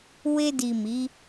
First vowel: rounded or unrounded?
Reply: unrounded